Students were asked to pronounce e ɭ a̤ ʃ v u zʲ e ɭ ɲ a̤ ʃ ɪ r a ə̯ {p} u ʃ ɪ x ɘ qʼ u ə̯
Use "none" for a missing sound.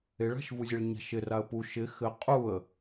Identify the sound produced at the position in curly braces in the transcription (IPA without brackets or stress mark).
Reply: p